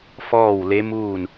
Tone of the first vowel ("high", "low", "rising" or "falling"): falling